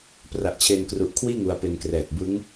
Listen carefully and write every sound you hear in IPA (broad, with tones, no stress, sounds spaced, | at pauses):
p r a˨˩ ʔ t͡ɕʰ e˧ n k r u˨˩ ʔ kʰ w iː˥˩ ŋ u˧ a̯ p e˧ n k r ɛː˨˩ k̚ b ɯ˦˥ ŋ